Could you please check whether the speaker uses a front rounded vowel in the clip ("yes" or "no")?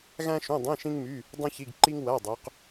yes